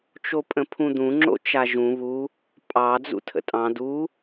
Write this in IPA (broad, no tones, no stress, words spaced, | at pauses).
t͡ʃopʼə̃pʰũd̪ũ ŋ͡ǁo̰t͡ʃaʒũ βu | pʼɑ d͡zṵtʰə̰tʼɑ̃ du